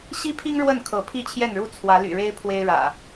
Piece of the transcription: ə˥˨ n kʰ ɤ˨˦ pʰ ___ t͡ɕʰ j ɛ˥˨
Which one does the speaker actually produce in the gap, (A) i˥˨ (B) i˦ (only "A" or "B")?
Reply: A